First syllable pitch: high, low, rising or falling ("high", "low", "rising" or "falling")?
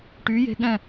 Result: rising